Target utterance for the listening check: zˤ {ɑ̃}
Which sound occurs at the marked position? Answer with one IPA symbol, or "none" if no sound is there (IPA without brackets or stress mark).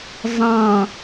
ɑ̃